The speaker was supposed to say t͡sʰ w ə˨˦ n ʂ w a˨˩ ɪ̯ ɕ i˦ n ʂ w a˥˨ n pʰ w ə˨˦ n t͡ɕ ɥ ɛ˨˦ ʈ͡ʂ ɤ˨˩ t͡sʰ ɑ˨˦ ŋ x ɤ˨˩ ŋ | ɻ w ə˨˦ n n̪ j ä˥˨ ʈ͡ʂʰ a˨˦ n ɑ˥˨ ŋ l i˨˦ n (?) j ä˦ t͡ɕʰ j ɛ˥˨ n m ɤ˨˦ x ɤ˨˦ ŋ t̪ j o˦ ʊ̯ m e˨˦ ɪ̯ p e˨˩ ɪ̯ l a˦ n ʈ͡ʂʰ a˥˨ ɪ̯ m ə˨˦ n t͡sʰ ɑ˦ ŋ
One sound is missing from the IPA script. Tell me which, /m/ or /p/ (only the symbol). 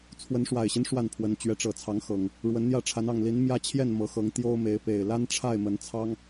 m